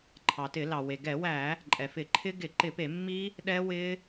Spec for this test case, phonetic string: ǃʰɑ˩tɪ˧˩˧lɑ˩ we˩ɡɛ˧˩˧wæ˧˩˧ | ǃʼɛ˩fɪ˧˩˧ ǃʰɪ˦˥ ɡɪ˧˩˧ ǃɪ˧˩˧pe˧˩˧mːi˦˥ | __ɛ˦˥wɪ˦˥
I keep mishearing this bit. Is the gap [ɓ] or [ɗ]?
ɗ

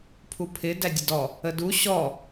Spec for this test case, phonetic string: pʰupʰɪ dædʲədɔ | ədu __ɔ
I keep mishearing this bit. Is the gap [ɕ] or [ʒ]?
ɕ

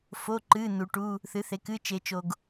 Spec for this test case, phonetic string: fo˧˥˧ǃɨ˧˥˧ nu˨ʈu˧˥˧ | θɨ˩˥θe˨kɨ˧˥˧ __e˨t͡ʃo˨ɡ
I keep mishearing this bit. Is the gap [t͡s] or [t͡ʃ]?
t͡ʃ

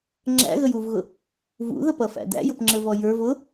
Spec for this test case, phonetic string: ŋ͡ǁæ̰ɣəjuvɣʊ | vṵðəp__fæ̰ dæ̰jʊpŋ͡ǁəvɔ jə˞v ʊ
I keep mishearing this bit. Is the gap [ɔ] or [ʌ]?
ʌ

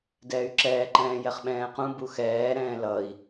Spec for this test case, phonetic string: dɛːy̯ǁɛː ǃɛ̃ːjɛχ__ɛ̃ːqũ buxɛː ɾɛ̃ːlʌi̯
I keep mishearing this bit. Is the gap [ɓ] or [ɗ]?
ɓ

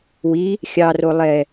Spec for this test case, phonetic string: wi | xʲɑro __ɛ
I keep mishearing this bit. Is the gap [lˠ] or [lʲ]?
lˠ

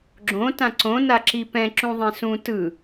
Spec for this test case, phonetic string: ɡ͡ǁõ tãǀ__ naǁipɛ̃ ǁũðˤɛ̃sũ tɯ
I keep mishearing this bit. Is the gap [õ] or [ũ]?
õ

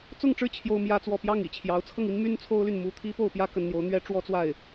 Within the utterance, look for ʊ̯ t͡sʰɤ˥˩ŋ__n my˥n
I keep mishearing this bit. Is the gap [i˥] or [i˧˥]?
i˥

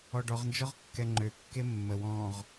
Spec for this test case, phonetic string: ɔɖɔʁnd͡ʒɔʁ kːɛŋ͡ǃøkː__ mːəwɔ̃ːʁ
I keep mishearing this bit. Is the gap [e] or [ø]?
e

